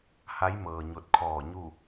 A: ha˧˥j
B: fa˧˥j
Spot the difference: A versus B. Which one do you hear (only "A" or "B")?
A